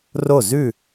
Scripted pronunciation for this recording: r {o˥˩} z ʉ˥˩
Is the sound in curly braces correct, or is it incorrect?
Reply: correct